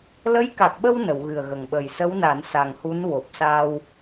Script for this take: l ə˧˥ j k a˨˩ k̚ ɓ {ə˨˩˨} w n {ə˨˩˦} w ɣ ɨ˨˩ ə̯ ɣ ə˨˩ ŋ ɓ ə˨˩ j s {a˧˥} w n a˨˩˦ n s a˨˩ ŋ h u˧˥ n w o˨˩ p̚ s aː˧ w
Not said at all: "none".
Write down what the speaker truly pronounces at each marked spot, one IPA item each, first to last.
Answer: ə˧, ə˨˩˨, ə˧˥

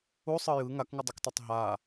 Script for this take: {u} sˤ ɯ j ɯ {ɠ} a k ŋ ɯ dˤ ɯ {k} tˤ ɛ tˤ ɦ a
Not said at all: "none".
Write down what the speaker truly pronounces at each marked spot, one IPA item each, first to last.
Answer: u, ŋ, k

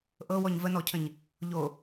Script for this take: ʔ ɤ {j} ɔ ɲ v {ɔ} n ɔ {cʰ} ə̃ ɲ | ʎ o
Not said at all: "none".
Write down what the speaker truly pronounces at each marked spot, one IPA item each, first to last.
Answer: w, ə, cʰ

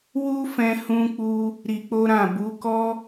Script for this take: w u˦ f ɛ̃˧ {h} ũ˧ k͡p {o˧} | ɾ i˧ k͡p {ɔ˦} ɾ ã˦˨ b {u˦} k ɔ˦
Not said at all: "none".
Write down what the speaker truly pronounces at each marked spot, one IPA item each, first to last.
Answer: h, u˧, o˦, u˨˦

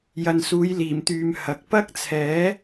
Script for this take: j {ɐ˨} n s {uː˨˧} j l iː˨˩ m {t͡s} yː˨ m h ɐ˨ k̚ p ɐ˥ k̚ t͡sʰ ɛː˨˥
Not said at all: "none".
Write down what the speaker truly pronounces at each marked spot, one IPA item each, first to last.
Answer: ɐ˨, uː˨˧, t̪

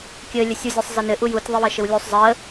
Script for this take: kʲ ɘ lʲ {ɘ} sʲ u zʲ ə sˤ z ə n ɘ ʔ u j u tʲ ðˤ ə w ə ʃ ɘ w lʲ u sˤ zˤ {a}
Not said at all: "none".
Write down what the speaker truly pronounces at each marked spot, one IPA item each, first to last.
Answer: ɘ, ə

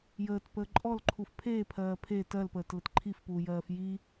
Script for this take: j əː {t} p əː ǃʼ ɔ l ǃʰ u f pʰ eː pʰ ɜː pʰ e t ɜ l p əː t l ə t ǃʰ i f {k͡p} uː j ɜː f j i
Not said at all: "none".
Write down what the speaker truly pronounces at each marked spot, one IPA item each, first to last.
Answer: t, p

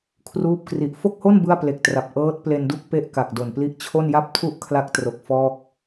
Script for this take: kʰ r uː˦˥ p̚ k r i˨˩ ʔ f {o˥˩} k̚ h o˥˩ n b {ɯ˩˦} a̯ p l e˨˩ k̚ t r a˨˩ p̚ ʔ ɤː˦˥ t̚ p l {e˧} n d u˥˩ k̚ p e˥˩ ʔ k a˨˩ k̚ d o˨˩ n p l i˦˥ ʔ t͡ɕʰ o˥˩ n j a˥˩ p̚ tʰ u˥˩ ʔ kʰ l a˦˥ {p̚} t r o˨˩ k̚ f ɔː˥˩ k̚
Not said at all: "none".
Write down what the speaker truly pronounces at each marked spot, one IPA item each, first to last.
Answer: o˥˩, ɯ˥˩, e˧, k̚

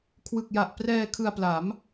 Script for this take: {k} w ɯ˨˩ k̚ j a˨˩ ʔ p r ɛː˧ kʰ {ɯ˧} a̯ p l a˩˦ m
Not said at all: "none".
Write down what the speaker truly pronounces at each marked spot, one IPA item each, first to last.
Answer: kʰ, ɯ˧

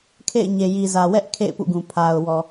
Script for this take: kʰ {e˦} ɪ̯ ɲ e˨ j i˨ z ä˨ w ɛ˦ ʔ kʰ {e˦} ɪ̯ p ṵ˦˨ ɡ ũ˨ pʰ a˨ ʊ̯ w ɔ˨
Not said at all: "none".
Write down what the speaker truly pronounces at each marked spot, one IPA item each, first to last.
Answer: ḛ˦˨, ḛ˦˨

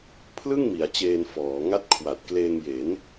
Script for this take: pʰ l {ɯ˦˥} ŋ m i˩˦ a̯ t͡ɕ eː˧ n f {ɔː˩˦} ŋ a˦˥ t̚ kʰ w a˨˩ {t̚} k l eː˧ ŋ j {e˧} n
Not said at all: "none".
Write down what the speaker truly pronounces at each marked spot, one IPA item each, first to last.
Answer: ɯ˥˩, ɔː˩˦, t̚, e˩˦

